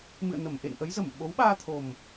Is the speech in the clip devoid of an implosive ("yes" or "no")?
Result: no